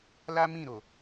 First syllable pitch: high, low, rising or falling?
high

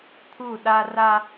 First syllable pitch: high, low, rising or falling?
falling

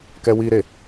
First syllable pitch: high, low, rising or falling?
high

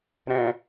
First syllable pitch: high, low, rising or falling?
low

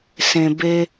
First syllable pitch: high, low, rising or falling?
low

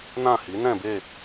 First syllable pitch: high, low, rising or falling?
falling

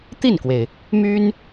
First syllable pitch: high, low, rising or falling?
falling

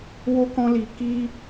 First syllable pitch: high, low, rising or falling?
high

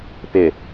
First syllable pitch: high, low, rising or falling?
low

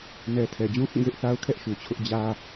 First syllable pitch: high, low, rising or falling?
high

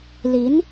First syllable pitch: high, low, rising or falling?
rising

